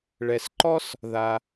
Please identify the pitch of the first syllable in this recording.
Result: low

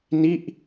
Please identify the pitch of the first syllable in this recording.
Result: falling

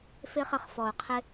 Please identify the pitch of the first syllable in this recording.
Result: high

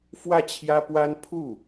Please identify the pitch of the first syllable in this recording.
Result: falling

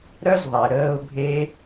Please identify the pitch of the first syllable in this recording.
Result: high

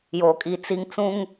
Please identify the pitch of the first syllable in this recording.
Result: low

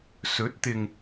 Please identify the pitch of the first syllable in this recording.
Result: rising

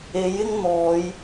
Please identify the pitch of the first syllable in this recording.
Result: rising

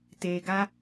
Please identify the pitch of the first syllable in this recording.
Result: low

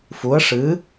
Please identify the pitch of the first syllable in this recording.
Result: rising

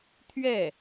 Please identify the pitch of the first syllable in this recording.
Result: falling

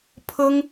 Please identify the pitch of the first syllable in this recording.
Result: high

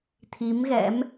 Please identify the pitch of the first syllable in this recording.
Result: rising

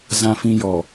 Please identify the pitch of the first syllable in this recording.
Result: low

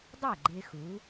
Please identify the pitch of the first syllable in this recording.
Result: falling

